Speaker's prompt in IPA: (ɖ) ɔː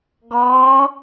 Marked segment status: incorrect: ɡ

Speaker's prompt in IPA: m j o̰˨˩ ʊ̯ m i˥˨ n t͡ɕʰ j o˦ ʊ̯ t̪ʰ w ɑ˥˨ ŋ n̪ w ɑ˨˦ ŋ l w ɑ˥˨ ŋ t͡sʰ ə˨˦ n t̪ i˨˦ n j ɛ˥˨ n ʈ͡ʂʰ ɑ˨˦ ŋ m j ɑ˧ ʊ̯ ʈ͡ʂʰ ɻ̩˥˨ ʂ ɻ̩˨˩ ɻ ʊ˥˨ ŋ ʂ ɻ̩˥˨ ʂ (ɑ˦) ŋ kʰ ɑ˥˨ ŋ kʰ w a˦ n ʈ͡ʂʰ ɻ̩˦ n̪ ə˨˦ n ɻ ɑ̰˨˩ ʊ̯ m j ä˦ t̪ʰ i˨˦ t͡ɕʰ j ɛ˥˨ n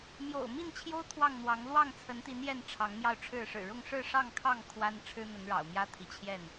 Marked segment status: incorrect: ɑ˥˨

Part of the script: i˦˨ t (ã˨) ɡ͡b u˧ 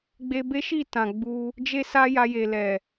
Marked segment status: correct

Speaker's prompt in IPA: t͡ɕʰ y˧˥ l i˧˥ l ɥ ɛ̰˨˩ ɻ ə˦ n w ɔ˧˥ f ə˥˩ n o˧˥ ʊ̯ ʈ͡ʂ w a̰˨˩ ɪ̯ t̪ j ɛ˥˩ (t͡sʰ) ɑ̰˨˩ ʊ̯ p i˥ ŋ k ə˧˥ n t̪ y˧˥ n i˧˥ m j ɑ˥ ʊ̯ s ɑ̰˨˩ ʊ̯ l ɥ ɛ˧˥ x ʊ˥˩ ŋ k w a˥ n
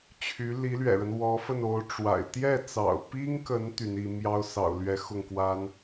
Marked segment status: incorrect: t͡s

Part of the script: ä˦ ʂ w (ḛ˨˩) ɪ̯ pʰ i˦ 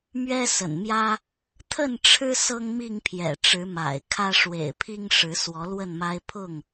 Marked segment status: correct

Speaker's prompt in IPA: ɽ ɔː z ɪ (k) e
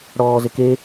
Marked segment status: correct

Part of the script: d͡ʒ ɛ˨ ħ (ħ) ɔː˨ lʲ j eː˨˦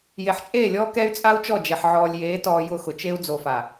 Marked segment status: incorrect: ʕ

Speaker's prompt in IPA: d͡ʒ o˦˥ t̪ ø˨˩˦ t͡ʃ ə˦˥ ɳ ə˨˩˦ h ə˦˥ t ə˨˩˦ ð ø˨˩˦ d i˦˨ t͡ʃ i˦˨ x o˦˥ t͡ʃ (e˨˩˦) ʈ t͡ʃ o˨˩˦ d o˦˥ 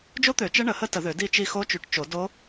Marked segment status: incorrect: y˨˩˦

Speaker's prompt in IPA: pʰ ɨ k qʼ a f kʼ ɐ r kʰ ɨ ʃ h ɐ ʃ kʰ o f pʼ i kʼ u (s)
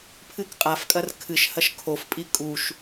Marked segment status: incorrect: ʃ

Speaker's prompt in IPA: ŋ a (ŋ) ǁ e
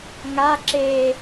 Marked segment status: incorrect: none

